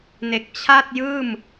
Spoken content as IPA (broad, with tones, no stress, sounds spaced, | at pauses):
n e˨˩ k̚ t͡ɕʰ a˥˩ t̚ j ɯː˥˩ m